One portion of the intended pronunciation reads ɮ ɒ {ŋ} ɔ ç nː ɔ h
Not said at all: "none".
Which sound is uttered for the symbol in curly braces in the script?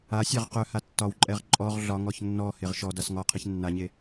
ŋ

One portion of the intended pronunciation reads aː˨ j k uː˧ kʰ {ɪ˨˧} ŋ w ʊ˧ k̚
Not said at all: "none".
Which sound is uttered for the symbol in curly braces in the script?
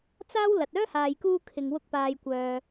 ɪ˨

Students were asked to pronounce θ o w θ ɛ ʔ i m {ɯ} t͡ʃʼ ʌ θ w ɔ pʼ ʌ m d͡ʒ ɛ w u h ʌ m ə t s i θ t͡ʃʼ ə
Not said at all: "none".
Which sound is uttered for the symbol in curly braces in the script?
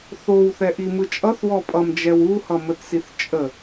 ɯ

